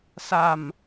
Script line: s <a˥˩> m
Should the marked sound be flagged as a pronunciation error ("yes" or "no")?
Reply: yes